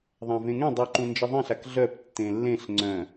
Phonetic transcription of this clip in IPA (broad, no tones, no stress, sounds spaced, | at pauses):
ðˤ ã v ẽ ŋ ẽ dˤ i ǃ ũ n d͡ʒ ə ðˤ ẽ ɬ a k ɮ œ p tː ẽ lː ẽ ɬ ŋ͡ǀ œ̃